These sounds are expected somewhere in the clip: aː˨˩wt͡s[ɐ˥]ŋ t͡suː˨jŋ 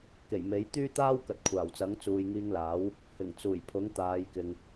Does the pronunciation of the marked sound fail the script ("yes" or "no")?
yes